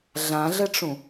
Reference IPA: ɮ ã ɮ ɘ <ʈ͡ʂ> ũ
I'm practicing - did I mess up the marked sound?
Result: no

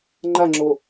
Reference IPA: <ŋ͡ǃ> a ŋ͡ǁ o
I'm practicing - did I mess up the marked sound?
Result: no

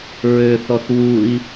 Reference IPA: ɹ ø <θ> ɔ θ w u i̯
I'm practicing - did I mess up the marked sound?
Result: no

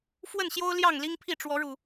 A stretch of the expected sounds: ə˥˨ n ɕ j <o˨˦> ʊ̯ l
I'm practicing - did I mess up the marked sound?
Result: yes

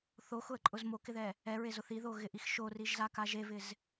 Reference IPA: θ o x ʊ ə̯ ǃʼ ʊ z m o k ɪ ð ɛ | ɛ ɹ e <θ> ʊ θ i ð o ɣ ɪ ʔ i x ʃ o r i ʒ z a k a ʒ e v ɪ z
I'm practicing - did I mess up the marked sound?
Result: yes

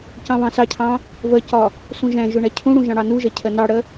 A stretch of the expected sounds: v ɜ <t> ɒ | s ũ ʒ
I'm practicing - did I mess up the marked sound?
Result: yes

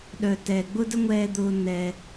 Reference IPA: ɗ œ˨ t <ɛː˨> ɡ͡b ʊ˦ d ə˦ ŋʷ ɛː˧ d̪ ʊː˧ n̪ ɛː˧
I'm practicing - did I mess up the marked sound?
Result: no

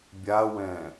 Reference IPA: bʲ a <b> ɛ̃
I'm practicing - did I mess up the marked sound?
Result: yes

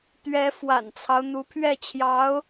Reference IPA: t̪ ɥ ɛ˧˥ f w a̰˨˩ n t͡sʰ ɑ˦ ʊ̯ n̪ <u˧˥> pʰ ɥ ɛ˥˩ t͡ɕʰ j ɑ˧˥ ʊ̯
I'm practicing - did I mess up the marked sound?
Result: no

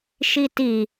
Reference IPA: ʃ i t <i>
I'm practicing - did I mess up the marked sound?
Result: no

